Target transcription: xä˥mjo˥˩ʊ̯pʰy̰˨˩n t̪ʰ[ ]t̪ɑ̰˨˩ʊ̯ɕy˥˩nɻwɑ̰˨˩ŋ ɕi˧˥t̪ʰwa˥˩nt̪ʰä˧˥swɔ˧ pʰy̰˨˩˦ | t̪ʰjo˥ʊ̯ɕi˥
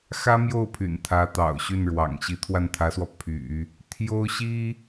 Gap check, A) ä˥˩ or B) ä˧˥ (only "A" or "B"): B